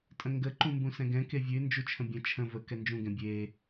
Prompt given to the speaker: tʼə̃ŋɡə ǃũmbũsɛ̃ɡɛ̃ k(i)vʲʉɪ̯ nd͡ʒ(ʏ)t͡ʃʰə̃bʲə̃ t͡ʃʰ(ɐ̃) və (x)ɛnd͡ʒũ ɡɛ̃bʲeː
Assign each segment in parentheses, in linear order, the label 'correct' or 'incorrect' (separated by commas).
incorrect, incorrect, incorrect, incorrect